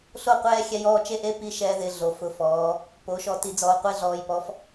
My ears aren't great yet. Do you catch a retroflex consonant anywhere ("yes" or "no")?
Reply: no